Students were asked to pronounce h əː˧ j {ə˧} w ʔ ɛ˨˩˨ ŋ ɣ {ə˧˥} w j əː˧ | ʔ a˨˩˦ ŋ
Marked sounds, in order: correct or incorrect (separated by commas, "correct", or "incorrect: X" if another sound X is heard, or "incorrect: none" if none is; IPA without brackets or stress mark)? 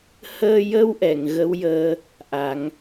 correct, correct